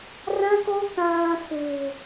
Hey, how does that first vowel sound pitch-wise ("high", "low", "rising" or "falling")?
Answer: high